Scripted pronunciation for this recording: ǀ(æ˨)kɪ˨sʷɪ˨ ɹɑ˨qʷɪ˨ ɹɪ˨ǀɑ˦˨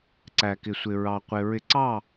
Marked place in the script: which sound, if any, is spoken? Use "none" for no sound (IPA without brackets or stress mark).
æ˨